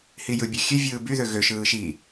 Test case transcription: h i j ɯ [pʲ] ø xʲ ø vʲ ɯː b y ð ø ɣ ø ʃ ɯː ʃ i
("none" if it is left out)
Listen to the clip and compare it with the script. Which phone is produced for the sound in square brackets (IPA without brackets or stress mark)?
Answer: bʲ